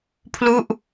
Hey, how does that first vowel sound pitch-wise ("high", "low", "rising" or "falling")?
falling